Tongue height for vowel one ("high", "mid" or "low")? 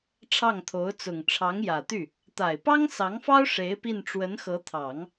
low